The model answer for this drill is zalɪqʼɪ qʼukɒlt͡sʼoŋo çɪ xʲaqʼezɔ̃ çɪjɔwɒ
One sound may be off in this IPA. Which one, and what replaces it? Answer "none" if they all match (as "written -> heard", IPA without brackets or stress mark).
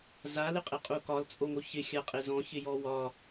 none